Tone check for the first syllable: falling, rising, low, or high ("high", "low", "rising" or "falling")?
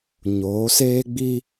rising